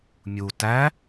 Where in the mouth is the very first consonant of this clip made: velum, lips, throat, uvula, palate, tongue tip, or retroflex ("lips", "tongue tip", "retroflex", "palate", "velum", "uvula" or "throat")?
lips